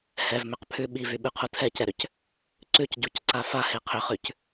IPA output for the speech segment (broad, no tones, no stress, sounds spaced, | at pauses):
h ɛ v m ʏ q pʰ ʉ ɓ i v y ɓ ʉ qʰ u tʰ ɛ c ɛ ɾ ʏ c | ǀ ʉ c ɟ u c ǀ a f a h e qʰ ʏ χ ʉ c